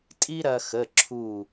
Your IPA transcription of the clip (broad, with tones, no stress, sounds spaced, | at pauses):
tʼ i˥ ɾ ɐ˧ x ə˩˧˩ ǁʰ u˧˩